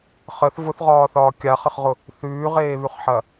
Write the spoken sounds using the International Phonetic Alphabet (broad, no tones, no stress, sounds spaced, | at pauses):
χ ə θ v ʊ θ ʁ ɒː θ ɒː kʲ a χ ə χ ʁ ʊ | θ ʉː ʁ eː β ʉ χ ħ ɐ